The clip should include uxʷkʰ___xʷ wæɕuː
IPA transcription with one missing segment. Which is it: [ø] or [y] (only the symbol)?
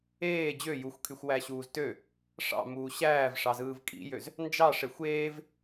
y